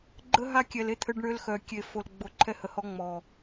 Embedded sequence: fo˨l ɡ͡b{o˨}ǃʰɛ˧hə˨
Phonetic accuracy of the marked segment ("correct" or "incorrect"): correct